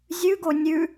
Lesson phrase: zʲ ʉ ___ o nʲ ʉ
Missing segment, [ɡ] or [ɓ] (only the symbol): ɡ